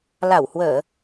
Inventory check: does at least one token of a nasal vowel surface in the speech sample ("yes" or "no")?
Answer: no